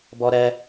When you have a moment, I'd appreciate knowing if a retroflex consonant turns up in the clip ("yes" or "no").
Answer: no